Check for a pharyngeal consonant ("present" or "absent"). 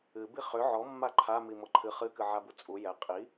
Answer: present